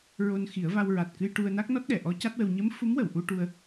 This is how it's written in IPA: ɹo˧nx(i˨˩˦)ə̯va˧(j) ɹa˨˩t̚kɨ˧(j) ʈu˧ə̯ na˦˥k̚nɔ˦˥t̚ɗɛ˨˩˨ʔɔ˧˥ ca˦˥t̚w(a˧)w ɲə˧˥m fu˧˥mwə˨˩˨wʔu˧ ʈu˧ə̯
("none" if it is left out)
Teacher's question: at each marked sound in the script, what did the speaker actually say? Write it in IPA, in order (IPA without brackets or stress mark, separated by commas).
i˨˩˦, w, j, ə˧